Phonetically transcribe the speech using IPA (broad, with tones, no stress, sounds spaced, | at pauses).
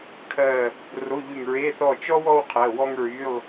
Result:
kʰ ɜ˦˨ | r o˧˥˧ ʎ y˦˨ ŋ ɹ e˧˥˧ θ ɔ˦˨ t͡ʃ ɔ˥ w ɔ˥ w qʰ ɜ˩˧˩ w ɔ˥ ŋ ɹ y˧˥˧ lˠ